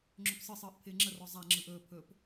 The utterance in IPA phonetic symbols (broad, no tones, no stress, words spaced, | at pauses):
ŋ͡ǁɵpsɯsˤɯːʔ pʰɪːŋ͡ǁərɔ zˤa ŋ͡ǁɯʔɵːpʰɵːp